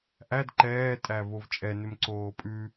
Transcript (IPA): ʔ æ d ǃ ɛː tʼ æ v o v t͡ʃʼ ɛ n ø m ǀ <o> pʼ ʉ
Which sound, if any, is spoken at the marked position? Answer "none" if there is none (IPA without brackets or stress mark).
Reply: oː